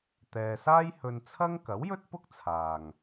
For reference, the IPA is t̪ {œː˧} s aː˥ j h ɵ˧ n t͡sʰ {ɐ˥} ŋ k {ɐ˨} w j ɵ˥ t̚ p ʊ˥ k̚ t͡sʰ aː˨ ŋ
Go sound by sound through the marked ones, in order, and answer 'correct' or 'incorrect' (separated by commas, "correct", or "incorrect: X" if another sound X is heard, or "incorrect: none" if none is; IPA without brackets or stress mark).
incorrect: ɛː˧, correct, incorrect: ɐ˨˥